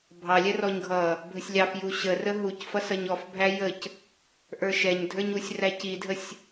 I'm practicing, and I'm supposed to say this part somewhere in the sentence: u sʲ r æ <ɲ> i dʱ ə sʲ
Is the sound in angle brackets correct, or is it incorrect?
incorrect